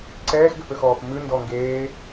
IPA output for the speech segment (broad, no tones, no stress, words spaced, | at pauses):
ǀɛːxɡøpøxɔːp mʉndɔ ŋɡeː